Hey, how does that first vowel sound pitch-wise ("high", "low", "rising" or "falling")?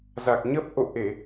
low